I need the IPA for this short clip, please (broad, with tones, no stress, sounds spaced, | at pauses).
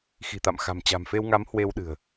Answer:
x i̤˨˩ t̪ a̰˧˨ m x a̤˨˩ m t͡ɕ a̤˨˩ m f e˧ w ŋ a˨˦ m h w e˧ w ɗ ɨ̤˨˩ ə̯